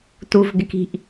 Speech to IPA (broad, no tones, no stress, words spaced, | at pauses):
tuvɡɪki̤ʔ